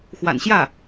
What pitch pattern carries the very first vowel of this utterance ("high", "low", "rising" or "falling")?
low